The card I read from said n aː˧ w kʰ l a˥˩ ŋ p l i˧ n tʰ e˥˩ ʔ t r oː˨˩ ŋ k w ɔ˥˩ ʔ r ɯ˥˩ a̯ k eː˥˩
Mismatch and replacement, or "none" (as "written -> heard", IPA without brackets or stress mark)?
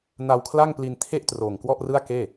aː˧ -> a˧